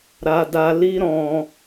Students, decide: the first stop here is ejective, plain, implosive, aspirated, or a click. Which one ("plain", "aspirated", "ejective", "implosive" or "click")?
plain